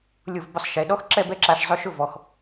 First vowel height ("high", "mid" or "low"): high